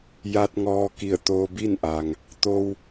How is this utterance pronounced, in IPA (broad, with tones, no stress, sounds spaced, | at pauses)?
j a˧ t̚ ŋ ɔː˧ k i˧˩ ə̯ t̪ oː˧ b i˥˨ n ʔ a˩ ŋ | t̪ o˧ w